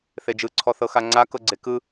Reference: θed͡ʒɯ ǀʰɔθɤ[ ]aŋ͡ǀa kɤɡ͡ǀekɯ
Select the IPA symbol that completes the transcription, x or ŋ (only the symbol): x